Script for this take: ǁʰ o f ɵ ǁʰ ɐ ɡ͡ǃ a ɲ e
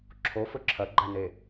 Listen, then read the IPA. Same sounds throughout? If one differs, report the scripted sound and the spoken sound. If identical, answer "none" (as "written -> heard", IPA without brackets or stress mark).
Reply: ɲ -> n